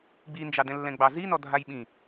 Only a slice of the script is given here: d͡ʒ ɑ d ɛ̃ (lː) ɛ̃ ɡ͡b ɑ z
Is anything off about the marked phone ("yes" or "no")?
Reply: no